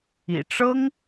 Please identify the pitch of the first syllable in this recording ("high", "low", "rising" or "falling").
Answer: low